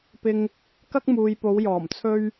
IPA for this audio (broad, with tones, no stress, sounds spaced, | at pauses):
p ɪ˧ ŋ | k ɐ˥ k̚ m uː˨ j p o˨˧ w j ɔː˨˩ m t͡sʰ ɵ˥ ɥ